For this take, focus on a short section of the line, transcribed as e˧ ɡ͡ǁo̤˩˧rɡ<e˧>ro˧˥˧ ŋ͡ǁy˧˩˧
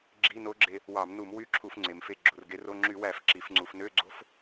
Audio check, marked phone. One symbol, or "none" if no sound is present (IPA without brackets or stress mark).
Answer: e˧